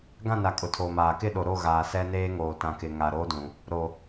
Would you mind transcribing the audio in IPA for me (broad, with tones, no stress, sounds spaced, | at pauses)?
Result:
ɡ ã˦˨ n a˨ kʼ ʊ˨ tʰ oː˨ m aː˨ k ɪ˦˨ ɗ o˨ ɾ o˦˨ ɣ aː˨ s ɛ˦ n eː˦ ŋ oː˨ t ã˨ k ɪ˨ ŋ a˨ ɾ oː˦ d ũ˨ | ɾ o˨